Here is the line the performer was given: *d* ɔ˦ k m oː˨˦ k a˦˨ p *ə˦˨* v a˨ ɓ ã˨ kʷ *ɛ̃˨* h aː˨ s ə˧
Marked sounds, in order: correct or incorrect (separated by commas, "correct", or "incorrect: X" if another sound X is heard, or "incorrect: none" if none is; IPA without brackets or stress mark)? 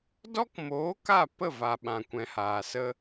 correct, correct, correct